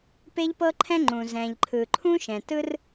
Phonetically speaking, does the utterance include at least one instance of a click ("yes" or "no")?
yes